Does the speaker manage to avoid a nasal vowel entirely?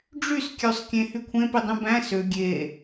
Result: no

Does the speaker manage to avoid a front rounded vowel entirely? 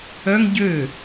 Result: no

